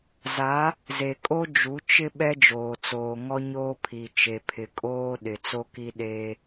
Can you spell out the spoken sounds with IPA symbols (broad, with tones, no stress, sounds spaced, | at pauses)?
z a˨˦ | z e˨ kʼ o˦ d͡ʒ u˨˦ t͡ʃ ɪ˦ ɓ ɛ˦ d͡ʒ oː˨ t͡s oː˨ ŋ ɔ˦ ɲ oː˦ pʰ i˨ t͡ʃ e˨ pʰ ɪ˨ kʼ oː˦ ɗ ɪ˨ t͡s o˦ k i˦ ɗ eː˦